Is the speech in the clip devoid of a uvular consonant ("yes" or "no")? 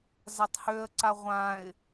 no